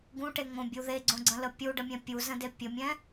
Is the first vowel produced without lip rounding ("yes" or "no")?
no